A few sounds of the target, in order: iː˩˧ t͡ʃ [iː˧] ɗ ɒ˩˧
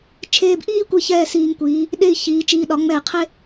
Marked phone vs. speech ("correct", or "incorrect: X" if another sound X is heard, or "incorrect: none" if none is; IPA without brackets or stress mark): correct